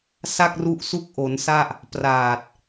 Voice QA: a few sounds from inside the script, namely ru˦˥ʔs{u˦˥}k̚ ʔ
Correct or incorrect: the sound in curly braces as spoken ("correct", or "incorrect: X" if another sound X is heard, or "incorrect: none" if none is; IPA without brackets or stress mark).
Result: correct